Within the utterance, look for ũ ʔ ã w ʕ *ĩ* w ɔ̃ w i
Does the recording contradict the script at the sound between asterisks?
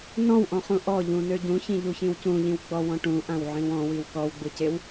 no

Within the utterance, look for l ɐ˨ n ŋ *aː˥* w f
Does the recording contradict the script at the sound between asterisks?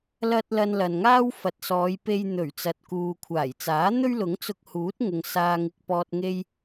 no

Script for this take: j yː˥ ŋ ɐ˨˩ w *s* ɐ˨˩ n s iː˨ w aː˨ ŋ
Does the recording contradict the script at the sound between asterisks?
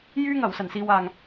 no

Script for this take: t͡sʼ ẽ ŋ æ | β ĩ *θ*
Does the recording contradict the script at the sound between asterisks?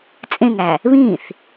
no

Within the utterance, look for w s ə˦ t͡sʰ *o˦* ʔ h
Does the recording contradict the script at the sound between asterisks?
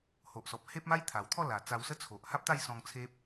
yes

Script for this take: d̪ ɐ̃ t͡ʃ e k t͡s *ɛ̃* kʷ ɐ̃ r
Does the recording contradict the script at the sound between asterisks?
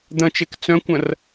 yes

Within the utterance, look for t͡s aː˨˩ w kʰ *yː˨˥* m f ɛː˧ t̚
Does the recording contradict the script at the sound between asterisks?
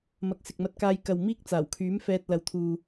no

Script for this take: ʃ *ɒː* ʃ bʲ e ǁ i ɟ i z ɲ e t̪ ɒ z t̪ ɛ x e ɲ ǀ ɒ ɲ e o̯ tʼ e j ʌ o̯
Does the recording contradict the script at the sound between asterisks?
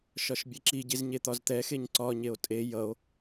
yes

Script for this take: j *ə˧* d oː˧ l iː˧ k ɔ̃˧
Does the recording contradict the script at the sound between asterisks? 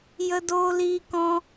no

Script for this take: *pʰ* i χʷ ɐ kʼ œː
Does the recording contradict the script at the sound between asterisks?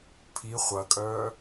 no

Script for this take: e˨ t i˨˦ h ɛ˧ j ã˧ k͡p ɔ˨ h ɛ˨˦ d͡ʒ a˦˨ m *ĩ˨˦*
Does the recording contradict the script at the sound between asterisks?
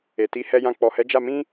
yes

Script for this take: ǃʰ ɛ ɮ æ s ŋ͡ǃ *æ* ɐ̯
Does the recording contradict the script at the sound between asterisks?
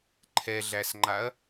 yes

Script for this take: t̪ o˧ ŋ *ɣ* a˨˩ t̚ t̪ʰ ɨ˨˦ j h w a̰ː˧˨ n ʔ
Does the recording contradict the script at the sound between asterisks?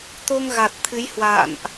no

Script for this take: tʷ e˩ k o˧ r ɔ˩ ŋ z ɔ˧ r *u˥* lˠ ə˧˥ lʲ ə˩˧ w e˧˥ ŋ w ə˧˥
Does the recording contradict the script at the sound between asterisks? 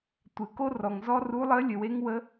yes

